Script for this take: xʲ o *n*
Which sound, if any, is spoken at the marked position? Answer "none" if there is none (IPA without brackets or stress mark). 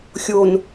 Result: n